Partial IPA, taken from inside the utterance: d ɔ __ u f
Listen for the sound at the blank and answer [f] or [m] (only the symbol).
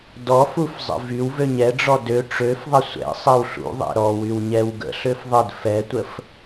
f